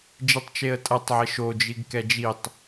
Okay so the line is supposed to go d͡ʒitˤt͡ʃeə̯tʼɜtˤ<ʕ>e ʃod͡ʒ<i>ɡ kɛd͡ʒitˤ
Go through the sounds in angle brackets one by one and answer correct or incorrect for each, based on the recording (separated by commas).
correct, correct